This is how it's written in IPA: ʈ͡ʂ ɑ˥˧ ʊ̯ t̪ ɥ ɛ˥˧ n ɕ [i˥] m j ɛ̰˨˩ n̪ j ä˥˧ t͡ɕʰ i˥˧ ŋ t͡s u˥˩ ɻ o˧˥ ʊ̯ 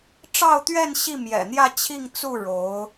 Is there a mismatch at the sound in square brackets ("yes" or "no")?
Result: yes